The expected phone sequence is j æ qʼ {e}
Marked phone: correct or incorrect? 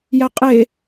correct